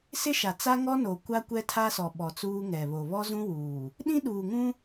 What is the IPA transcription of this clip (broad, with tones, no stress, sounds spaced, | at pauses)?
s ɪ˦ ʃ a˨ t͡s a˦ ŋ ɔ˦ n o˨ kʷ a˦ kʷ ɛ˦ tʰ a˦ s ɔ˨ ɓ ɔ˨ t͡s uː˦ ŋ ɛ˨ β o˨ β ɔ˦ z ũ˦ w uː˨ | ɗ ĩ˦ ɗ uː˨ ŋ ũ˦